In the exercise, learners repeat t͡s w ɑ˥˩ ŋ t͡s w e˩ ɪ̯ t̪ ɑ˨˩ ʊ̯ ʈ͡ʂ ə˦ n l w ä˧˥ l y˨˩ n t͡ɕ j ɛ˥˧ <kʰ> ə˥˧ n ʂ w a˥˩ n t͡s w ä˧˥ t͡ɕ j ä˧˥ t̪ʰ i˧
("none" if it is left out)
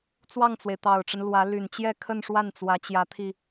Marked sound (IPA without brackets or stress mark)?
kʰ